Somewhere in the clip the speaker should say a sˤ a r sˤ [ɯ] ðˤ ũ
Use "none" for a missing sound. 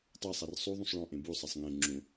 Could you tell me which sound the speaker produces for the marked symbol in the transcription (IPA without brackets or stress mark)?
u